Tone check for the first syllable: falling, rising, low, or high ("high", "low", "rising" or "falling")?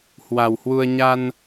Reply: low